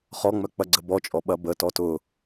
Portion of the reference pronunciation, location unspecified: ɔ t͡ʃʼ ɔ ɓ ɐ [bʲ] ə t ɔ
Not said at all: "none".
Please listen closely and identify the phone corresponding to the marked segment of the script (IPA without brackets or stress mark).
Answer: b